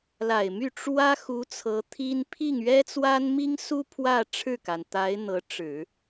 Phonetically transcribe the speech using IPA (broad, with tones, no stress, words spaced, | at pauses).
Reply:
la˨˩ɪ̯my˥˩ ʈ͡ʂwä˥ xu˧˥ t͡sʰɤ˧˥t̪ʰi˥n pʰi˥˩ŋɥɛ˥t͡swa˥nmi˥ŋ su˥ pʰwä˥˧ ʈ͡ʂʰɻ̩˥˩ka˩nt̪a˧˥ɪ̯ n̪ɤ˧˥ʈ͡ʂɻ̩˨˩˦